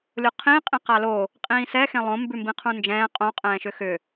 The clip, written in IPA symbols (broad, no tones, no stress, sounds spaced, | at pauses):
lʲ o qʰ ĩː qʼ ĩ q a l o | qʼ ĩː s ɛ x ẽ lˠ õ m b ʉ m b ĩ qʰ ũ n d͡ʒ ɛ̃ː qʼ õ qʼ ɛ̃ː ʃ ʏ x ʏ